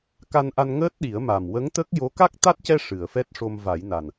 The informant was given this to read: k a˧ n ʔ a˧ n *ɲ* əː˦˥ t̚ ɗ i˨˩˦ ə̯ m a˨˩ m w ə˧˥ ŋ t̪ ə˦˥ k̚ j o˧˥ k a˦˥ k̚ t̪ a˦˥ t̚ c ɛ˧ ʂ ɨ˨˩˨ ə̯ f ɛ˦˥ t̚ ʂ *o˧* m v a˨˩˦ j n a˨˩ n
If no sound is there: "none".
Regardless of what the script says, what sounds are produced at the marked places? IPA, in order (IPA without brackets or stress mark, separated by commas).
ŋ, o˧